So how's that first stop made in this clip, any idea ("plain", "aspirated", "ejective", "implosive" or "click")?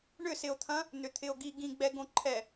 aspirated